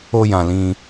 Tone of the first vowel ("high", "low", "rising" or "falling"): high